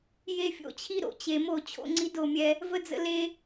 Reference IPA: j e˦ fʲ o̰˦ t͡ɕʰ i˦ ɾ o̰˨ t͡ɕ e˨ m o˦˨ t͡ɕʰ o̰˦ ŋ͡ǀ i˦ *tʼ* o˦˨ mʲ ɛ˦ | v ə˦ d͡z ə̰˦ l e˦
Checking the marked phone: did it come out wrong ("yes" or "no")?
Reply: yes